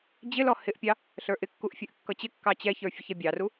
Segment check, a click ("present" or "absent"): absent